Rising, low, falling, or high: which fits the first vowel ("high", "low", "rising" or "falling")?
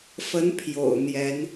rising